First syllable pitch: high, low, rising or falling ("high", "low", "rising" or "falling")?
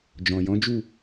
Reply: low